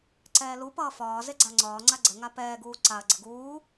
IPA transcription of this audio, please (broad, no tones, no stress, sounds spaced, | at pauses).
ǀ ɛː l u p ʌː f ɒː z e ɡ͡ǀ a ŋ͡ǀ ɒː ŋ͡ǀ a ɡ͡ǀ ə ŋ a p ɛː ɡ uː ǀ a ɐ̯ ɡ͡ǀ ə ɡ uː